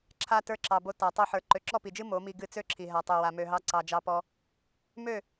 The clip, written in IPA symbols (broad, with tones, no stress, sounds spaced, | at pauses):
ǁʰ a˧ t ə˞˧ ǁ ɑ˨ b o˧ t a˨ tˤ o˧ ħ ə˞˨ ǃ ø˨ ǁ ɔ˦˨ p i˨ d͡ʒ ɨ˦ m o˨˦ m i˧ ɡ ɨ˧ t͡s ø˦ ǁʰ i˨ ɦ a˧ tˤ ø˧ w a˧ m ø˧ ɦ ɑ˦ ǀ ɑ˧ d͡ʒ ɑ˦ p ɔ˦ | m ø˦˨